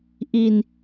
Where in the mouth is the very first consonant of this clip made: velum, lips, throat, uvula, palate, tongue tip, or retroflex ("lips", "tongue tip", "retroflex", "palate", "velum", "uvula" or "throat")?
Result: throat